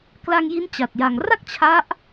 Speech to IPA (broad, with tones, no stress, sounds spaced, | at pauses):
k l a˧ ŋ j i˦˥ n t͡ɕ a˨˩ t̚ j a˨˩ ŋ r a˥˩ k̚ t͡ɕʰ a˦˥ ʔ